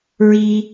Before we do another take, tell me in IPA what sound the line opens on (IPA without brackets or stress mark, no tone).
ɹ